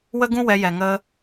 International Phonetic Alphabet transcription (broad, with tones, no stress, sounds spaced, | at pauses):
w ə˦ ɡ ũ˦ w ɛ˧ j ɛ˨ ŋ ə˧